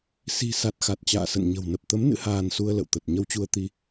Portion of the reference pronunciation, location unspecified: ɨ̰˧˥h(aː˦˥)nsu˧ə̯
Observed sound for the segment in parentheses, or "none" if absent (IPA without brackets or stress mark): aː˧